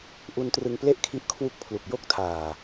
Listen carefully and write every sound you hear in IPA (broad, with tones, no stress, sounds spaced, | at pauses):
ʔ u˧ n t r ɯ˧ ŋ p l e˥˩ ʔ kʰ i˦˥ ʔ kʰ w u˦˥ k̚ pʰ l u˨˩ k̚ j o˥˩ k̚ tʰ aː˨˩